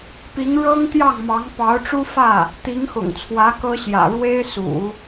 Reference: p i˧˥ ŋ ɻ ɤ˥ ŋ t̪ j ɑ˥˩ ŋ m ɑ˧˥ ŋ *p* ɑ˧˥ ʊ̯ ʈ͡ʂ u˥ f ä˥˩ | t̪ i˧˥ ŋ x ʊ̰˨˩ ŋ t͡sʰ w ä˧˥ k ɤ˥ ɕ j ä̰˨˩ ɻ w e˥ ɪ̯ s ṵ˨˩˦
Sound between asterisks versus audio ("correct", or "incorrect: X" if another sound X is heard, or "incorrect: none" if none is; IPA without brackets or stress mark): correct